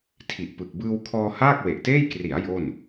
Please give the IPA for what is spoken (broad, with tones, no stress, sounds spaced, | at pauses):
tʰ i˨˩ ʔ p ɯ˨˩ k̚ b ɯː˧ w kʰ ɔː˧ h aː˥˩ k̚ w e˨˩ ʔ t eː˥˩ j k r i˩˦ a̯ j o˥˩ n